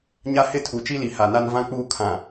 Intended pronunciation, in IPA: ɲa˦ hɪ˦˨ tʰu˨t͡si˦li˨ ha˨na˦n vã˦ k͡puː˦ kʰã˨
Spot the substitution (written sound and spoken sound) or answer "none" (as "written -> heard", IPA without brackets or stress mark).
t͡s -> t͡ʃ